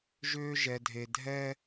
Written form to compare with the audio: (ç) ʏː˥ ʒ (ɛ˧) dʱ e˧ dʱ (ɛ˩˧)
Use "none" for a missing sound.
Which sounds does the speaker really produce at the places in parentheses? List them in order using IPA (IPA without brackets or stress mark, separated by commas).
ʒ, ɛ˧, ɛ˥